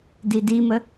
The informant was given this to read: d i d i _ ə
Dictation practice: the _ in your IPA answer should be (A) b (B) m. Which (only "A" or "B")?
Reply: B